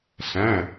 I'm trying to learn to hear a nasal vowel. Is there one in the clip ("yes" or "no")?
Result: yes